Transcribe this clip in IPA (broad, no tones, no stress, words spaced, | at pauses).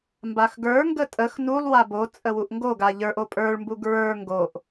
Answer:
mbaxɡə˞ŋɡə tʼəx nulˠwa bot͡sʼə wuʔŋɡoɡa ʎə˞ʔo pʼə˞ɭmbu ɡɹə˞ ŋɡoʔ